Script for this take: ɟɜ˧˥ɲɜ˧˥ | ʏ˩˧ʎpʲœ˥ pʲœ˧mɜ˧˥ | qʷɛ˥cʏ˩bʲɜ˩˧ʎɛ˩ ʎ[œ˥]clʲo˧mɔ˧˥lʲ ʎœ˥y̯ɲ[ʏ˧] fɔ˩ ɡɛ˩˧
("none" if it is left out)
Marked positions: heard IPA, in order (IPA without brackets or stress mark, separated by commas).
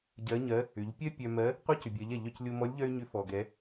œ˧, ʏ˧˥